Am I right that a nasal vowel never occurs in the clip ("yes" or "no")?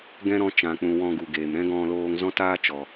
no